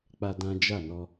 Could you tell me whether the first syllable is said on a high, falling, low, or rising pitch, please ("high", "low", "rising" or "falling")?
high